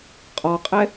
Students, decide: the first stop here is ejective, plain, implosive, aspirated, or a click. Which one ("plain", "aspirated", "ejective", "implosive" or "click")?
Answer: ejective